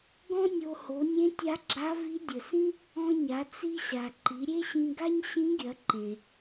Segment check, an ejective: absent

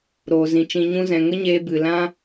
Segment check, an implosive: absent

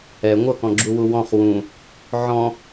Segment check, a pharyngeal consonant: present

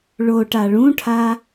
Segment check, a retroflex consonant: present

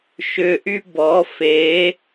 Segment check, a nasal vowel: absent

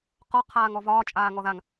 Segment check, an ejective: present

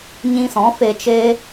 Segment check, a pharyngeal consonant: absent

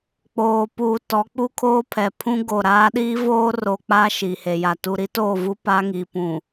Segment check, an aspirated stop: present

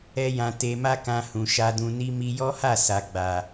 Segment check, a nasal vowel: present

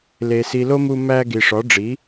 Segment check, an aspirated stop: absent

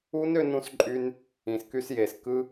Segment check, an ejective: present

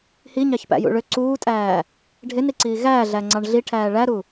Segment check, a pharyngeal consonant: absent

